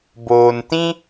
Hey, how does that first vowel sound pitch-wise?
low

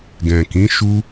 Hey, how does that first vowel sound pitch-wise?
low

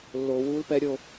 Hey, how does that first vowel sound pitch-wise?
low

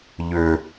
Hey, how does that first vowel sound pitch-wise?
low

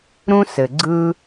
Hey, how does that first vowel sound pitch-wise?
high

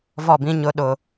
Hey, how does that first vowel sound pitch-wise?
falling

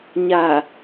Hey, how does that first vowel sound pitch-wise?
low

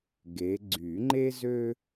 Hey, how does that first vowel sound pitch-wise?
rising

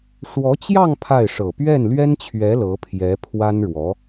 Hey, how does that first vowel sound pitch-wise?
rising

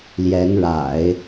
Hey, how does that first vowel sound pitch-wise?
rising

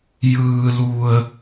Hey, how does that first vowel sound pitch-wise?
low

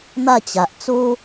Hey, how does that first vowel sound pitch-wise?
falling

